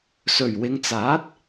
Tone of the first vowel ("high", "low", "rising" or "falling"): low